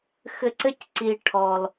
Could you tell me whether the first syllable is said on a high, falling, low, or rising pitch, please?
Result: high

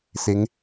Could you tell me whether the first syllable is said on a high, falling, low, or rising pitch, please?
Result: rising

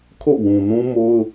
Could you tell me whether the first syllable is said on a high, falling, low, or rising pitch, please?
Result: falling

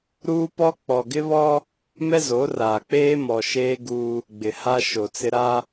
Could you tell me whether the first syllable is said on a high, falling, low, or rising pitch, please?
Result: high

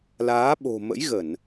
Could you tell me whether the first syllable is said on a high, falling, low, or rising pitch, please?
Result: rising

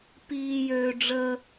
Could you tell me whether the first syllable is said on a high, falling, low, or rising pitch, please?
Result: high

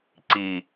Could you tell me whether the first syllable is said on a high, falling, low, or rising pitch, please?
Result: low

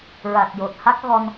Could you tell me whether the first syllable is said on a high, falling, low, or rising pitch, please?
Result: low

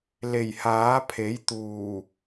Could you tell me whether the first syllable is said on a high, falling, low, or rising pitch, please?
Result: low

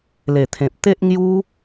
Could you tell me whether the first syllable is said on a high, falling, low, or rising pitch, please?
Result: low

